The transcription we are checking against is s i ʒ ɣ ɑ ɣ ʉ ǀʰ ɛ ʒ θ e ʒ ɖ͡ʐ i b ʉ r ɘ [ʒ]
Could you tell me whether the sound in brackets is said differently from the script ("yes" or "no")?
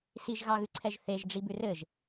no